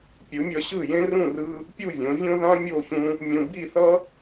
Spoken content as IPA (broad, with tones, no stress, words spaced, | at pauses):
pʲɯ˨˦mʲʌ˧ɕɯ˦˨jẽ˦ rũ˦˨rɯ˧ | pʲu˦˨vʲõ˨˦vʲõ˦ ðã˦ mʲo˦˨çũ˧ | mʲũ˧ bi˦˨θʌ˦